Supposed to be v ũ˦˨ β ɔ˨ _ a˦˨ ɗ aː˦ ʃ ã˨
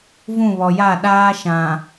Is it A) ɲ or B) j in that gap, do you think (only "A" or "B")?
B